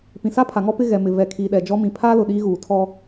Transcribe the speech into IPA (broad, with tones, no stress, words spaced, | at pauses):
pĩ˨sa˦pʰa˨ŋɔ˦ pɪ˦ɣɛ˨ mɪ˨ vɛ˨kʰiː˨ɗɛ˨d͡ʒɔ˦ mĩ˨pʰaː˦lʊ˨ ɗiː˦ɣuː˨ tʰɔ˦